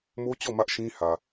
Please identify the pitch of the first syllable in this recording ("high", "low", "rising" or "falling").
high